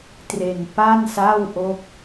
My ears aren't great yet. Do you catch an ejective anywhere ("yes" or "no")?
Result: no